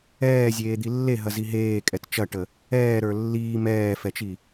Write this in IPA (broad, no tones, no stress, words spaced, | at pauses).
ɛːzʲeːd̪i lːeɦɐzi ɦeːkʼɛt t͡ʃɐʈə | ɛːɾə˞ lːiː mɛːfɛt͡ʃi